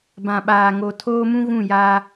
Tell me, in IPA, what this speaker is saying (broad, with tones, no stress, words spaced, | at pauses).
bã˨ɓaː˨ŋo˨ tʰoː˦mũ˦ ɣũ˦˨jaː˦